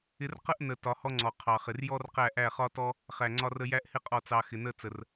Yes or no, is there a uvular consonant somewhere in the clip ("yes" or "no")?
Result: yes